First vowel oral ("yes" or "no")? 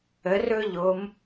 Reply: yes